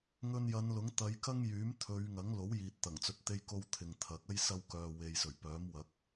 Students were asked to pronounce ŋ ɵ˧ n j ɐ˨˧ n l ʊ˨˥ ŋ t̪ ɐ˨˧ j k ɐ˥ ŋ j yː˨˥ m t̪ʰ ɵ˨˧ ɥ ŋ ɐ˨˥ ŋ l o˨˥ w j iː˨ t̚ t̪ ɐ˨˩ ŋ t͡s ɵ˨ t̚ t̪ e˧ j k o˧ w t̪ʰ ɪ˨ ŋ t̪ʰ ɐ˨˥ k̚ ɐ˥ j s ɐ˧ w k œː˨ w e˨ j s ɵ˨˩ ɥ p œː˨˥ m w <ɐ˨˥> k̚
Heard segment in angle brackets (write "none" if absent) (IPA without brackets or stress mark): ɐ˨˥